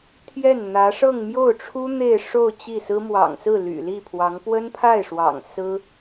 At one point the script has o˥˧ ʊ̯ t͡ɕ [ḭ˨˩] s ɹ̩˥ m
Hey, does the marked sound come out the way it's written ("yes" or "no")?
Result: no